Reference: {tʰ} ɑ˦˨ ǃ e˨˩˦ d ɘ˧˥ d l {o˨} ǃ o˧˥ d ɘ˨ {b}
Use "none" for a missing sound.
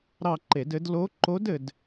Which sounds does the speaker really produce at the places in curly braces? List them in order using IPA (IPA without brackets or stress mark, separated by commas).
ɾ, o˧˥, d